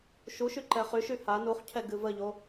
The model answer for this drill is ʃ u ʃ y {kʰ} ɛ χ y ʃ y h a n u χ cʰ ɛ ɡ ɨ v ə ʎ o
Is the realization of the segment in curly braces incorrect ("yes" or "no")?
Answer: yes